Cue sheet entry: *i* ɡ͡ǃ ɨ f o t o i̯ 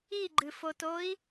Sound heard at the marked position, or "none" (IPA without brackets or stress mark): i